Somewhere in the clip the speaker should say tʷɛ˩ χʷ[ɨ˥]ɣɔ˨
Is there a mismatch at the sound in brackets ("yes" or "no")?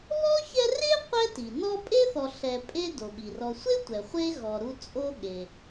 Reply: yes